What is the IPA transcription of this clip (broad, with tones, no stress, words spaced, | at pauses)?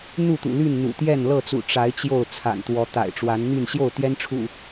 n̪u˥˨t̪ṵ˨˩ly˥˨n n̪ṵ˨˩t̪jɛ˥˨n lɤ˥˨t͡sṵ˨˩ ʈ͡ʂa˨˦ɪ̯ t͡ɕjo˥˨ʊ̯t͡sʰa̰˨˩nt̪wɔ˨˦t̪a̰˨˩ɪ̯ ʈ͡ʂwa˨˦nn̪y˥˨n ɕjo˥˨ʊ̯t̪jɛ˦nʈ͡ʂʰṵ˨˩